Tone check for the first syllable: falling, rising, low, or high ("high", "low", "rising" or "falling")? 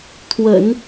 low